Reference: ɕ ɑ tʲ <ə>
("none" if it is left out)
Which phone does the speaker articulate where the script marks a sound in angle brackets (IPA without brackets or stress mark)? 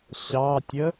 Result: ə